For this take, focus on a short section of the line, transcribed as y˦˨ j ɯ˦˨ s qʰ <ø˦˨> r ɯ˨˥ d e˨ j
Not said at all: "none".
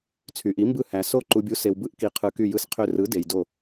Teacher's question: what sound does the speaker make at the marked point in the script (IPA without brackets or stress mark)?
ø˦˨